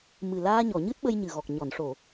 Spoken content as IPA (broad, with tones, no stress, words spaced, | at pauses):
mɨ˨˩ laː˧ɲɔ˨˩˨ ɲɨ˦˥t̚ɓə˧jɲɨ˨˩ɣɔ˨˩k̚ ɲɔ˨˩˨nʂo˨˩˨